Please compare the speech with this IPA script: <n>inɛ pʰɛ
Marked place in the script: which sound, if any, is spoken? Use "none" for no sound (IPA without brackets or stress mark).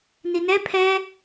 n